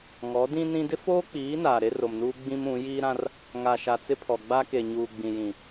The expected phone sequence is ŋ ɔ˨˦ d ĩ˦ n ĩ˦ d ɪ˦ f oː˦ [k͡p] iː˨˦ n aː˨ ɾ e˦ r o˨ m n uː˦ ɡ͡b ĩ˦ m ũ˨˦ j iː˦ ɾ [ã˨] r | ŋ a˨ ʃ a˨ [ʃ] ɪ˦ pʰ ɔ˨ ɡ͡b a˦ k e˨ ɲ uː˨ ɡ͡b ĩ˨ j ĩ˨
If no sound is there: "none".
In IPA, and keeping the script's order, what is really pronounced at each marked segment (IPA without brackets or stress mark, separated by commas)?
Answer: k͡p, ã˦, t͡s